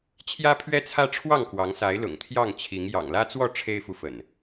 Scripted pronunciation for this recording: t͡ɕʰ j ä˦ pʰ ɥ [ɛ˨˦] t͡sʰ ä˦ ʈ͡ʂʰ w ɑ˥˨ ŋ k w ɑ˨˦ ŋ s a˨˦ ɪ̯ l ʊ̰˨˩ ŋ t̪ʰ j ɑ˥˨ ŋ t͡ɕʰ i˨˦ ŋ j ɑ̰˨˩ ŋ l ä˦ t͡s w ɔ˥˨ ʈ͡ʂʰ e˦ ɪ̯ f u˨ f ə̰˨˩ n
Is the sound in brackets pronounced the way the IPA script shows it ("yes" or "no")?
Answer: no